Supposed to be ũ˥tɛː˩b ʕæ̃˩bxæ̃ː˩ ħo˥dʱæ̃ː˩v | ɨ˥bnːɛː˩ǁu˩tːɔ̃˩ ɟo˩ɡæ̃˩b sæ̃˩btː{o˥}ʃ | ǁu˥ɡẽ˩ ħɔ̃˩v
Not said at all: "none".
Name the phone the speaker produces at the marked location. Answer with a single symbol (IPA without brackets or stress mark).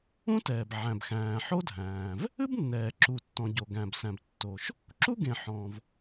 o˩